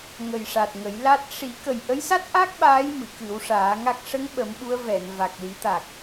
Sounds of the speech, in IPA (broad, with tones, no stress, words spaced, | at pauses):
ŋə˨˩jʂa˨˩t̚ ŋə˨˩˦jla˦˥t̚ ʂi˨˩˦ kə˨˩jʔə˧˥jsa˦˥t̚ʔa˦˥k̚ ɓaː˧˥j mɨ˨˩˨kɨ˨˩˦wʂaː˨˩˦ŋa˦˥k̚ ʂə˧˥ŋɓə˨˩˦m ɓu˧˥ə̯vɛ˨˩˨n va˨˩k̚li˨˩˦t̪a˨˩k̚